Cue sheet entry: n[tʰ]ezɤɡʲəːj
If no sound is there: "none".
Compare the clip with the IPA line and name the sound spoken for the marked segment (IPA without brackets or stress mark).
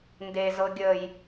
d